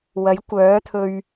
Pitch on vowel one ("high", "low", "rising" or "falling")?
rising